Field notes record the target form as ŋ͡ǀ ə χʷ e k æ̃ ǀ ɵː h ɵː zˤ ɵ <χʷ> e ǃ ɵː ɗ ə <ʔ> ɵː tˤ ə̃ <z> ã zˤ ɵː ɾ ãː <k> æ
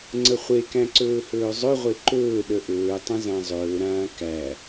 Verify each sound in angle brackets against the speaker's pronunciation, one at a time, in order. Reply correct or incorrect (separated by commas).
incorrect, correct, correct, correct